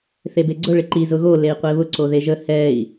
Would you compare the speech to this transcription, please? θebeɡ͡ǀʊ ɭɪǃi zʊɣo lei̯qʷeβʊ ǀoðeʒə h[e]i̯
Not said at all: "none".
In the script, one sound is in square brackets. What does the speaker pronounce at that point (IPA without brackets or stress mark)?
ɛ